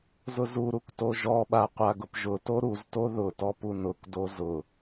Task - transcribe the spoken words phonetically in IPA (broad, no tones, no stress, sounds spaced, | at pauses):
z ʊ z u ɾ u k t o ʒ ɔ ɓ a qʷ a ɡ ʊ p ʒ ʊ t o ɾ u z t o ð ʊ t ɔ p u n ʊ k d o z ʊ